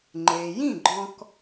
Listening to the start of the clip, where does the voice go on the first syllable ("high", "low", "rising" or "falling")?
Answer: low